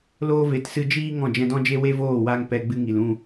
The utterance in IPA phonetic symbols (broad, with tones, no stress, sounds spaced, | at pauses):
l oː˦ v e˨˦ t s ɨ˧ d͡ʒ iː˦ ŋ ɔ̃˦˨ d͡ʒ ɛ̃˧ d ɔ̃˦ d͡ʒ e˦ w e˦ v oː˦˨ w a˧ ŋ p ɛ˧ ɡ͡b ɨ˦ ŋ i˨ l ũ˦˨